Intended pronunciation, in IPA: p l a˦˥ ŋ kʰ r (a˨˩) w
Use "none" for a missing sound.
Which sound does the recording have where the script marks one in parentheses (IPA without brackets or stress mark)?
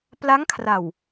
a˨˩